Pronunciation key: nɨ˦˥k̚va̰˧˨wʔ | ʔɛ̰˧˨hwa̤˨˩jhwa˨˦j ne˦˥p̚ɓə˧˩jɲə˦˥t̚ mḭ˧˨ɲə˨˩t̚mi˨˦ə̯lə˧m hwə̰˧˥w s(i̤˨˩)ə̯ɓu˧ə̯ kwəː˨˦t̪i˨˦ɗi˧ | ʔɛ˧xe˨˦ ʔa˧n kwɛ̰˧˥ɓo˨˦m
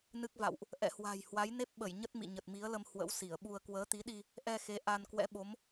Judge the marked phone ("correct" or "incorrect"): incorrect